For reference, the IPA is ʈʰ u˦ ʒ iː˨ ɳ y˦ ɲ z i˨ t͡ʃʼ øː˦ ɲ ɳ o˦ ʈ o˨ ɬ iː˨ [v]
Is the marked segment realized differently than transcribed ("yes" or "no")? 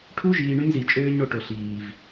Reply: no